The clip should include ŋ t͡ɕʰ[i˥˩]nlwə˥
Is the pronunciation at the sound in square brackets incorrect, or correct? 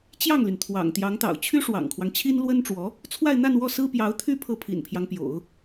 incorrect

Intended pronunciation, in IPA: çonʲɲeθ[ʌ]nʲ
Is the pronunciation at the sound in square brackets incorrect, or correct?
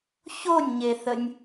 incorrect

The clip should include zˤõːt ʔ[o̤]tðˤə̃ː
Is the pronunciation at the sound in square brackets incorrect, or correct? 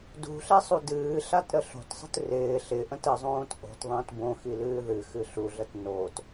correct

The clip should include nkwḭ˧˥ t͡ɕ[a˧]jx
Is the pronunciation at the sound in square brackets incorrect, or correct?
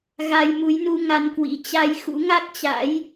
correct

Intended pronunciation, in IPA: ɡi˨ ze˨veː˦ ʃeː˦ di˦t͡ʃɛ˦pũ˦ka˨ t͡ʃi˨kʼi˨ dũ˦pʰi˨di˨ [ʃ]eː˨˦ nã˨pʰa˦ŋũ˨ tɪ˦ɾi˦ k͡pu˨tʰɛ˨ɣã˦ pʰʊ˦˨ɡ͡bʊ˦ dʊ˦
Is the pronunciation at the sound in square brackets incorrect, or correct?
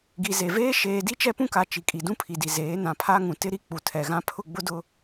incorrect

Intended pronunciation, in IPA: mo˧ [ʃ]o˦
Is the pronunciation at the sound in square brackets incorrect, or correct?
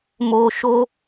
correct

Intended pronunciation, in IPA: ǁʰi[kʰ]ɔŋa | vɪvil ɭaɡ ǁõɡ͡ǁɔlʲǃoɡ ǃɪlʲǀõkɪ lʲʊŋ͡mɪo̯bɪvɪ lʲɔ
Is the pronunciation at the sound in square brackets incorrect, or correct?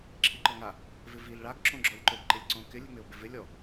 incorrect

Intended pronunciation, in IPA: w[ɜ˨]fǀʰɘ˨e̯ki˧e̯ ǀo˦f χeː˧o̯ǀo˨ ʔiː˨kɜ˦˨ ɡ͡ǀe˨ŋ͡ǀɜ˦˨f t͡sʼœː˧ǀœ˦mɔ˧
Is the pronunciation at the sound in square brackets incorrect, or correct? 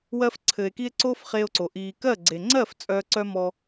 incorrect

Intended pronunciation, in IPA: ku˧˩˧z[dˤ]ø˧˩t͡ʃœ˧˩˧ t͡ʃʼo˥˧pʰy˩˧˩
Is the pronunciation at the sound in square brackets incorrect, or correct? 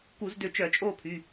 incorrect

